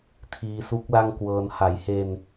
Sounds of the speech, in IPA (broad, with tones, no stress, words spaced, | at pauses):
tʰiː˧su˦˥k̚ la˥˩ŋkwɤː˧n ha˩˦jhe˧n